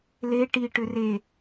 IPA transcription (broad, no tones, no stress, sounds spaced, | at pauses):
l e ʈ i ʈ ʏ r e